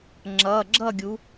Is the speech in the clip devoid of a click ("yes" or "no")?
no